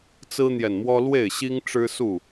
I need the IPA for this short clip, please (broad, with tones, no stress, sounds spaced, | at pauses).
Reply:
t͡s ɹ̩˦ n̪ j ɛ˨ n m w ɔ˦ l w e˥˨ ɪ̯ ɕ i˦ ŋ ʈ͡ʂ ɻ̩˦ s u˥˨